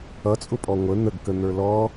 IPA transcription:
ʌt͡sʼʊpʼɔ ŋʷə n̪əɡkən̪ə˞ lɔ

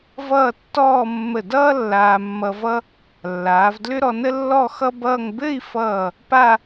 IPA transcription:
vʌː˥˧tːɔː˥˧ mːə˧˩dʌː˥ lːaː˧mːʌ˧vʌ˥ | lːaː˩˧vdlʏ˥ɾɔ˧ nə˥lːɔ˥˧ xʌ˥bʌː˥˧ŋ bɘ˥˧i̯fʌː˧˩ | pa˥˧

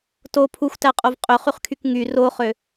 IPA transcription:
to pʰuxʷtæqʼov qʼøχyχkʰyk ŋy roχø

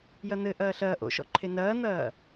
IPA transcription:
jɐn̪ɘ ʔɐːɬɐː ʔo̰ʃɔ̰ǃʰe nɐːn̪ɐː

